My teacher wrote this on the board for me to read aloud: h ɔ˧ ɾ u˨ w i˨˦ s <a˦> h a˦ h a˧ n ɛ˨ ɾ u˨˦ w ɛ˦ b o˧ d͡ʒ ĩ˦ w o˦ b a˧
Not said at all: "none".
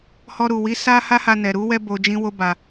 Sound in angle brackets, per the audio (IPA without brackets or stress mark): a˦